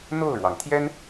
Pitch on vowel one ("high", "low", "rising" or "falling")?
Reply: falling